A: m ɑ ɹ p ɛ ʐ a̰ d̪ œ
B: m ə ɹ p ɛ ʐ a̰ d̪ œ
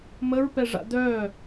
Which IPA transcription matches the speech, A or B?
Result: B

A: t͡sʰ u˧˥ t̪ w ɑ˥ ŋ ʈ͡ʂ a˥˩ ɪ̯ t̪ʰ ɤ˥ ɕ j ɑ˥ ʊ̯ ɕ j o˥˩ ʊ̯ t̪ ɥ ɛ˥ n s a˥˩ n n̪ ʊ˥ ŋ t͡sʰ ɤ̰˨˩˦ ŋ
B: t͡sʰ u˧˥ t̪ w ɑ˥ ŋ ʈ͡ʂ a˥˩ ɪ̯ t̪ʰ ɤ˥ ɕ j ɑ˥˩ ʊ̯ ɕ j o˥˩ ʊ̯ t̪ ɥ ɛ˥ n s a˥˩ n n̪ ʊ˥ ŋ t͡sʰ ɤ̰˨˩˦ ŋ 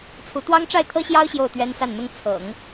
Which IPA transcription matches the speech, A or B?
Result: A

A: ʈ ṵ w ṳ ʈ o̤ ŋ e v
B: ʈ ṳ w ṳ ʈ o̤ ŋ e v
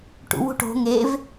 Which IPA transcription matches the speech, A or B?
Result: A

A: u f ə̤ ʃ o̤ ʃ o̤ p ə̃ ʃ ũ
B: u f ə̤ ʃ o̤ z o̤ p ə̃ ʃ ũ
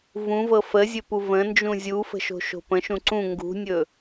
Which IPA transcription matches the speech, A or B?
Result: A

